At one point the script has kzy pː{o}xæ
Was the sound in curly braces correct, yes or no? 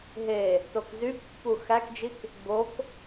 no